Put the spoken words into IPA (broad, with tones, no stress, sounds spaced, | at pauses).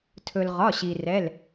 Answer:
tʰ ɵ˩ l ʁ ɒ˩˧˩ ɕ i˩ r ɛ˩˧˩ l